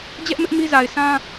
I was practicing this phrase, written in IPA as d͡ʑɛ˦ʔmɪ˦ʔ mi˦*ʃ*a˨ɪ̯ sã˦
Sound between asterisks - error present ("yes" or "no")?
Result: yes